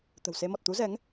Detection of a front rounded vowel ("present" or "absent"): absent